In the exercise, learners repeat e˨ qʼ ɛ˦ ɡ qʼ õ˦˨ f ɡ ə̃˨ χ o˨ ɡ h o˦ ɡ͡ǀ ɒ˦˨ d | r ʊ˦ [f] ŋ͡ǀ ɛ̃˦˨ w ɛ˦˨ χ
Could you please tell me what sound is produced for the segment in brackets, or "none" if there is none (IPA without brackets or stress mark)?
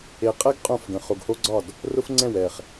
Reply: f